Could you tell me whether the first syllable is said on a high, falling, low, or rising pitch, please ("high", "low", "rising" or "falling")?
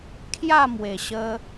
falling